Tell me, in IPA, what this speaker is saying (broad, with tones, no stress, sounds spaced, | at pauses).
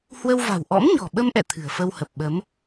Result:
h w ə˧ w v a̤˨˩ w ʔ ɔ̰˧˥ m ɲ ɔ̤˨˩ ɓ ə˧ m ʔ ɛ̰˧˨ t̪ʰ ɨ̤˨˩ ə̯ f ə˧ w h ə˨˩ p̚ ɓ ə˨˦ m